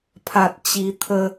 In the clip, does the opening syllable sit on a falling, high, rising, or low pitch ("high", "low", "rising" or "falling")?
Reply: high